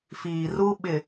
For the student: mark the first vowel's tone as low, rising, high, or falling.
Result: low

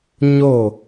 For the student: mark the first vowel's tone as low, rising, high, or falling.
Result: falling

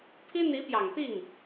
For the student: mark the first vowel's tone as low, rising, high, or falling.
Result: high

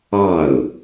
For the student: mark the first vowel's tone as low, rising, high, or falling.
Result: falling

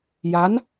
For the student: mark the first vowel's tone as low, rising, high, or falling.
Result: rising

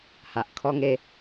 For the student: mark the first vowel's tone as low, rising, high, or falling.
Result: low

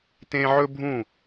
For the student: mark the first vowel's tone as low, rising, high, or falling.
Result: high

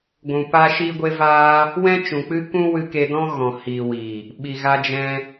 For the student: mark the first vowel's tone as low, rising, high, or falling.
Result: low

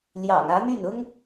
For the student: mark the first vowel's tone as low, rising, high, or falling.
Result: low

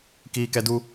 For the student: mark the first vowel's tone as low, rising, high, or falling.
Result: high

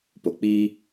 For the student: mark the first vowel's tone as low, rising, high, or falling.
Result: low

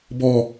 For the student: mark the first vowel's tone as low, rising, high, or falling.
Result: low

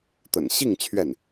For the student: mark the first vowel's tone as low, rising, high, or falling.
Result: low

